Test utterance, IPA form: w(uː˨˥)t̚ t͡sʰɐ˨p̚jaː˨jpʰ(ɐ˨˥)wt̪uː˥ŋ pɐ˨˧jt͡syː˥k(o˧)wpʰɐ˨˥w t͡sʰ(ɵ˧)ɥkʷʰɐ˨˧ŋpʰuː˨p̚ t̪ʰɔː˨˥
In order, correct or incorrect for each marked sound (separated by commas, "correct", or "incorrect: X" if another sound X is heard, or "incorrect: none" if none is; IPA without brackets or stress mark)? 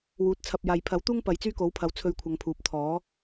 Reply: correct, correct, incorrect: o˨˥, correct